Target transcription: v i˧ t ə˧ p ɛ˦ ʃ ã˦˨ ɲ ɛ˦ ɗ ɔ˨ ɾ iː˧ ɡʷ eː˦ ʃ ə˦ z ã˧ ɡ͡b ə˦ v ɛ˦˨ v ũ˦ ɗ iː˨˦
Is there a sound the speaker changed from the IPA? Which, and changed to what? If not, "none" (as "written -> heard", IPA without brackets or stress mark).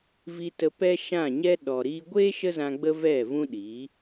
none